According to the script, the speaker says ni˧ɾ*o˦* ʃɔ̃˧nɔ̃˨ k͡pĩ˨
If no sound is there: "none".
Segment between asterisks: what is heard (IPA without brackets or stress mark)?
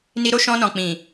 o˧